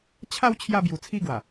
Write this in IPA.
t͡ɕʰ a˥˧ w t͡ɕʰ j a˥˧ b j u˧ t͡sʰ i˥˧ ɡ w a˨˩

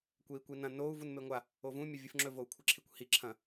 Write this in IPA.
kʷ e i̯ kʷ i n ɐ̃ n o u̯ v u n m e ŋʷ a | o v ũ mʲ ɐ vʲ ɨ f ŋ͡ǁ ɵ v o u̯ kʷʰ ɨ ǁʰ i kʷ h i ǁʰ ɐ̃

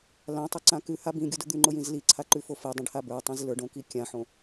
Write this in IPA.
l ã tˤ ʊ ǀ ã k ʉ h a b ĩ ɡʲ o d ʊ d̪ ʉ ŋ͡ǃ ʊ j ĩ z l i ǀʰ a ǃ ʉ f o f i dˤ ĩ ɖ h a b ə˞ tˤ ĩ z l ə˞ ɖ õ k i kʲ ã ħ õ

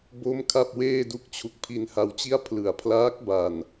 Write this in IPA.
b o˦˥ m kʰ a˥˩ p̚ w eː˥˩ d u˦˥ k̚ t͡ɕʰ u˦˥ k̚ pʰ i˧ n h a˧ w t͡ɕ i˥˩ a̯ pʰ l ɯ˩˦ a̯ pʰ l aː˦˥ k̚ b a˨˩ n

